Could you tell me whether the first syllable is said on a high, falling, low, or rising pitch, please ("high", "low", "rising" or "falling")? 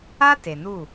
high